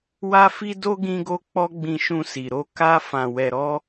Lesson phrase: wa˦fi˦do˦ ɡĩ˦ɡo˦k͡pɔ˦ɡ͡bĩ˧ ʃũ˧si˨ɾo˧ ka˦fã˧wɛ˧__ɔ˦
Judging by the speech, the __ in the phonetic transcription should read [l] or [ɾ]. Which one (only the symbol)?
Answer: ɾ